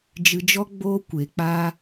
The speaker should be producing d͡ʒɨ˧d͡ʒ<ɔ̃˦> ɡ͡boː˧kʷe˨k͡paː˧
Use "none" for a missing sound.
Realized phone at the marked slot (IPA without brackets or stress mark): ɔ˦